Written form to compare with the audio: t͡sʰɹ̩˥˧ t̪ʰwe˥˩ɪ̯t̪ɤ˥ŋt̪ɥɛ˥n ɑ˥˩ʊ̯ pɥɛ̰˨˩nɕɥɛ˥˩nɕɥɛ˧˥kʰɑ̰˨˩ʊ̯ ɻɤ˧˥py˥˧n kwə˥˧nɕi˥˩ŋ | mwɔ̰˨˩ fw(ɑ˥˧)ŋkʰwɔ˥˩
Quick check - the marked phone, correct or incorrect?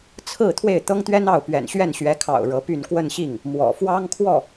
incorrect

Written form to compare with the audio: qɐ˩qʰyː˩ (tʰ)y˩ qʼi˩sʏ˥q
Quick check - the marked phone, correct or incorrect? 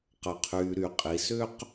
incorrect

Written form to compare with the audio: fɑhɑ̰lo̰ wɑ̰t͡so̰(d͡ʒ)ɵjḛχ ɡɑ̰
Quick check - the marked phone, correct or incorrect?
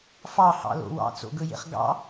incorrect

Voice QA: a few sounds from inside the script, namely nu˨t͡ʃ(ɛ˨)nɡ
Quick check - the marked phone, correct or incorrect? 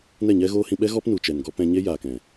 correct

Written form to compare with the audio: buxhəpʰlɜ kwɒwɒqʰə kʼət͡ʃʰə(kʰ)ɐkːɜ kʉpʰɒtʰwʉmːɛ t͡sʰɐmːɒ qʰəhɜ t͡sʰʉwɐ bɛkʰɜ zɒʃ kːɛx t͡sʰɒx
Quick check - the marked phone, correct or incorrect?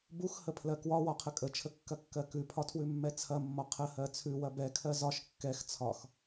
incorrect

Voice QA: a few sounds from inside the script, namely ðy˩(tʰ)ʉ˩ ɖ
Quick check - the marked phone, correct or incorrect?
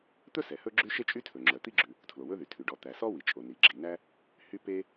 correct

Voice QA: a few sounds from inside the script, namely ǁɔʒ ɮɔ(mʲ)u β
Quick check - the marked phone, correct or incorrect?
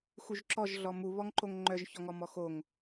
incorrect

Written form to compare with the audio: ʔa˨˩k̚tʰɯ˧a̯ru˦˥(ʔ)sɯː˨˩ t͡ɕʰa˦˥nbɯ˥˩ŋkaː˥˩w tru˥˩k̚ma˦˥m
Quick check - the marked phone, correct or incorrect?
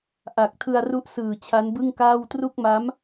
correct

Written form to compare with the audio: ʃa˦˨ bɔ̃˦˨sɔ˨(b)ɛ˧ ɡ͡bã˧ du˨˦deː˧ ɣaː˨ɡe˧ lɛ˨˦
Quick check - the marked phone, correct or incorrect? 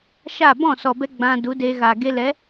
correct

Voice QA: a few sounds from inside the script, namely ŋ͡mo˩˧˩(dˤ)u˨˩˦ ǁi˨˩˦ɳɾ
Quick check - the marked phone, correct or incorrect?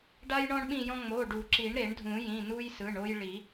incorrect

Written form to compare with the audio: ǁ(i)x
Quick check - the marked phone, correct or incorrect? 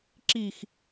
correct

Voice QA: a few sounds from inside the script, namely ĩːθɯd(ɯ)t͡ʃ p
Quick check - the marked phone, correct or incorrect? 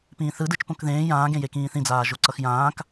correct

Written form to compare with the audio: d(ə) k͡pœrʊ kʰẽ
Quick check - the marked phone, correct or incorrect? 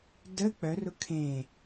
correct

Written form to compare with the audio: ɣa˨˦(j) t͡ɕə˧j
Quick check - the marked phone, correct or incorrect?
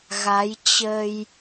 correct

